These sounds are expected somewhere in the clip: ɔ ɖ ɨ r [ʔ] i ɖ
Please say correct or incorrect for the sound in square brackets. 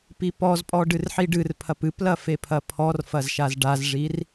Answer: incorrect